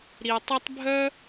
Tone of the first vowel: low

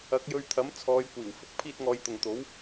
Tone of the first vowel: rising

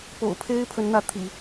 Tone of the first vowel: low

